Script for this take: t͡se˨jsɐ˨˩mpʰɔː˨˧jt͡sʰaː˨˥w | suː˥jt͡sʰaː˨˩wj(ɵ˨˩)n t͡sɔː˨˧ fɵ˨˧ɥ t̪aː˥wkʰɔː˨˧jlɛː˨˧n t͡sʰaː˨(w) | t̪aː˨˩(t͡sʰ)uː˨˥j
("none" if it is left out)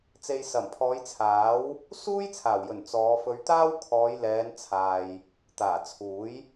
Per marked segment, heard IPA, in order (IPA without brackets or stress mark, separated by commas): ɵ˨˩, j, t͡sʰ